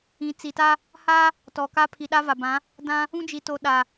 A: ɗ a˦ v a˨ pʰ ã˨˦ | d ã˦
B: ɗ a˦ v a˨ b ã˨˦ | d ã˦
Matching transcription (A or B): B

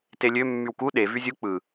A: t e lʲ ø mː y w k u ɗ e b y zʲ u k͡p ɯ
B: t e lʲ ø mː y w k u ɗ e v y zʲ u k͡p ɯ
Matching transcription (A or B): B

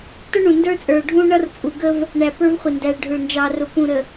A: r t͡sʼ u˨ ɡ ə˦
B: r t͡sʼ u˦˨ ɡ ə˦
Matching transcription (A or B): A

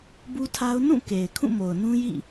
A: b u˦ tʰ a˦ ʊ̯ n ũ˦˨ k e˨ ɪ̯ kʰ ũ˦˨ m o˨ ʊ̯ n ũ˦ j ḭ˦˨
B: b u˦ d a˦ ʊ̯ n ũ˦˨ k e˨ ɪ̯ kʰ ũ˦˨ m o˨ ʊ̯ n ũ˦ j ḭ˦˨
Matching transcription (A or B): A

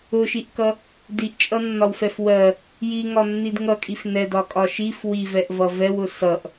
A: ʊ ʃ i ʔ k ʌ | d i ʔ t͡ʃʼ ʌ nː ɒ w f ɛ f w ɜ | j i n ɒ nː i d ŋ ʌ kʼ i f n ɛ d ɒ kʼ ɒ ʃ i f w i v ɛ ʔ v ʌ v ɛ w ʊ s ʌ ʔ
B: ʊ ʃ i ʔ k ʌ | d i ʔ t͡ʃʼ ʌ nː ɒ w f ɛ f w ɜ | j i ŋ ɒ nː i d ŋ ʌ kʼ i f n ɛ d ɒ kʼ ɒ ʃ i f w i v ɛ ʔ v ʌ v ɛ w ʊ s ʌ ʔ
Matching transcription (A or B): B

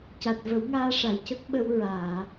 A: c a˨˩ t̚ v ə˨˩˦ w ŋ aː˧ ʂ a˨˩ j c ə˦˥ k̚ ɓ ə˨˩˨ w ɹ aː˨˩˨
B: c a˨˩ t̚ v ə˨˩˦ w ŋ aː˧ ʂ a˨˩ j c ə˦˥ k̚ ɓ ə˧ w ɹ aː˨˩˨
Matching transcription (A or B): B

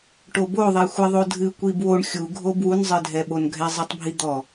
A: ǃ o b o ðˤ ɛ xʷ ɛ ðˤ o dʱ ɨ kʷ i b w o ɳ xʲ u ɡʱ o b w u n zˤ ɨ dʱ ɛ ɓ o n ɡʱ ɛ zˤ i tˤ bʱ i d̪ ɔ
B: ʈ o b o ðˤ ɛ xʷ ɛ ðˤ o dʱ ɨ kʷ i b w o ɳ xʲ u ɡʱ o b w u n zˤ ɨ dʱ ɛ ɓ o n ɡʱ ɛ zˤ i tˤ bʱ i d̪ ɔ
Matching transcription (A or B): B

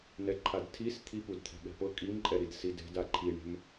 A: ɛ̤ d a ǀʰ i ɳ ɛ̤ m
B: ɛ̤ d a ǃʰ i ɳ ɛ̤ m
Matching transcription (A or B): B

